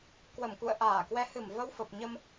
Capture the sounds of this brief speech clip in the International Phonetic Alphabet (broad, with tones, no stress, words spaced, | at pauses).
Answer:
kwə˧˩mkṵ˧˨ə̯ ʔaː˧˩kwɛ˨˦hɨ˧˩m və˧wfə˨˩p̚ɲə˧m